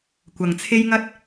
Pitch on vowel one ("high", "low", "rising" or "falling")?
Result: low